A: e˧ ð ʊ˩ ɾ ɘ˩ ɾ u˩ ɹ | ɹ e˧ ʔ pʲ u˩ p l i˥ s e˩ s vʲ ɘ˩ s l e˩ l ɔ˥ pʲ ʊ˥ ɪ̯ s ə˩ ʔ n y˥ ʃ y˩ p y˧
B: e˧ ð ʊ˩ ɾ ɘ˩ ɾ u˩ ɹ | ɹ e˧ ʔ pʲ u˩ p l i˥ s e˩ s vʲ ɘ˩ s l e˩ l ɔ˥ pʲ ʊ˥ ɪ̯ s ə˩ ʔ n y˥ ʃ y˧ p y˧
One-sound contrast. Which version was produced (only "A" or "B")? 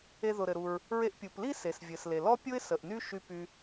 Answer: B